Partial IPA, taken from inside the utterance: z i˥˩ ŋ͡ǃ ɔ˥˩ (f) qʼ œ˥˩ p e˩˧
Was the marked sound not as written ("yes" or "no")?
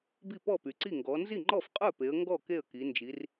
no